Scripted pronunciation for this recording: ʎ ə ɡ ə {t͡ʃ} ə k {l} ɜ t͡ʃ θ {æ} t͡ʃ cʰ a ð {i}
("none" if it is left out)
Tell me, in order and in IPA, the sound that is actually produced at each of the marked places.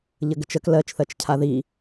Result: t͡ʃ, l, ɜ, i

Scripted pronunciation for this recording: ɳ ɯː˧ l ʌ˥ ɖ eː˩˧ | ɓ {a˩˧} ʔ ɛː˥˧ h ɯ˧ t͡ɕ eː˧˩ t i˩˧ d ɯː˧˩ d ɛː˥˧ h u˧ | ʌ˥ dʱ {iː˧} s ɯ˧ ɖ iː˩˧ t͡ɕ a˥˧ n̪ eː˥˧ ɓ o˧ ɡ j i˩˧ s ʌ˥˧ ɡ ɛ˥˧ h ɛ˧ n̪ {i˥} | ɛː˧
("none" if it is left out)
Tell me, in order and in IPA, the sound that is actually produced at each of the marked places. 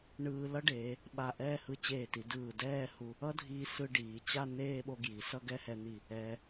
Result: a˧˩, iː˧, i˧˩

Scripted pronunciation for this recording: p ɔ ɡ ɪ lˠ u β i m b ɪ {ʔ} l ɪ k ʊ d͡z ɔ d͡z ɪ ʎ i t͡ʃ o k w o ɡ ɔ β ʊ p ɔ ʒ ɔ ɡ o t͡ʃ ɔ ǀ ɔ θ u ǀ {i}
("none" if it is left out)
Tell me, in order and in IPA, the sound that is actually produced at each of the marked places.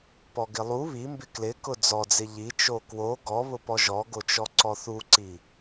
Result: k, i

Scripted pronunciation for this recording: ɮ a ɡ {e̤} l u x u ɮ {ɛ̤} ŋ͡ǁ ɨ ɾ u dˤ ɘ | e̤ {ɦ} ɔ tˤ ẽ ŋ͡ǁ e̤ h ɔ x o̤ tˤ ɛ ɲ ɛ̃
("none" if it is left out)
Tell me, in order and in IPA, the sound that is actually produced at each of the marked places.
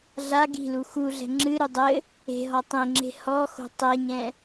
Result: i̤, ɛ̤, ɦ

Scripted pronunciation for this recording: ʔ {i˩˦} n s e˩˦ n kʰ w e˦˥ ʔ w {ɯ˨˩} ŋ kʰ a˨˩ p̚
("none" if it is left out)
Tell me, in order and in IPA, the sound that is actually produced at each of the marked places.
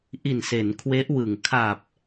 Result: i˨˩, ɯ˨˩

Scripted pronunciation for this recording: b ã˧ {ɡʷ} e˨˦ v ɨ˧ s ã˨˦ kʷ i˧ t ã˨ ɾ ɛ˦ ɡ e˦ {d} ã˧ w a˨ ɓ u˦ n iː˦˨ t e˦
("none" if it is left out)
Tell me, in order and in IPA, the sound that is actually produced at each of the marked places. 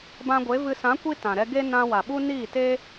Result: ɡʷ, n

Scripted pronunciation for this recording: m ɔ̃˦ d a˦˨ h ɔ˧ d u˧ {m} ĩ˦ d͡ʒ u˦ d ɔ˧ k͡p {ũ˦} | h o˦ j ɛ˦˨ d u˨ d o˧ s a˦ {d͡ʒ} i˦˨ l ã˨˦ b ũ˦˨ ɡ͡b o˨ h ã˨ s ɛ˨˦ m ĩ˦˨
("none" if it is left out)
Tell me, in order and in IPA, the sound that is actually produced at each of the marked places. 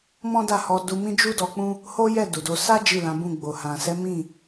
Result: m, ũ˦, d͡ʒ

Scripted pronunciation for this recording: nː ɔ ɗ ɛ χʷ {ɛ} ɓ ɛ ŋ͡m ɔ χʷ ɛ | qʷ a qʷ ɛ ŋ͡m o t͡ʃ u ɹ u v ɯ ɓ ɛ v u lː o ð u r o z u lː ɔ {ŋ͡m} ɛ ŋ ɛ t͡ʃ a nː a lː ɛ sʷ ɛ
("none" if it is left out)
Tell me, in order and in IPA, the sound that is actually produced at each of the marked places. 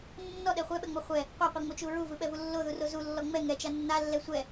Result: ɛ, ŋ͡m

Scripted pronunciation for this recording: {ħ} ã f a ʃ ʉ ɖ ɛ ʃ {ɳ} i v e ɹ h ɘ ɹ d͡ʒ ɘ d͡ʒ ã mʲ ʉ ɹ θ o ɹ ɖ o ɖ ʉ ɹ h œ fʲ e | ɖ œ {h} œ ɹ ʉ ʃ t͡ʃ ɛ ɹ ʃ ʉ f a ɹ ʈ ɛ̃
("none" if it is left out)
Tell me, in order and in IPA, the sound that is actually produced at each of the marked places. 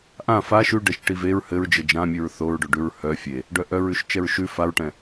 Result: ʔ, ʈ, ʔ

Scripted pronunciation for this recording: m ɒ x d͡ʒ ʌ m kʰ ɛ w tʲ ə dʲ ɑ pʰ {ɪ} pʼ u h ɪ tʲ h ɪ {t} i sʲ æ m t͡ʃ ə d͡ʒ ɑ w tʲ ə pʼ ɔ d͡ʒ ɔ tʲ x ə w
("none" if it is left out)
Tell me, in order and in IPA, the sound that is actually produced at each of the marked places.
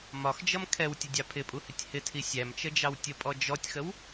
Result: ɪ, tʰ

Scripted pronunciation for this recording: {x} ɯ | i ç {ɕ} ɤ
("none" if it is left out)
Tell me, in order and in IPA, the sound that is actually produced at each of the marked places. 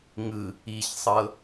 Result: ŋ, sˤ

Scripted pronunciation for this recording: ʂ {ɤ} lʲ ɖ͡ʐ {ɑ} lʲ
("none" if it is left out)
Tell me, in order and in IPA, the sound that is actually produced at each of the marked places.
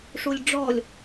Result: o, ɔ

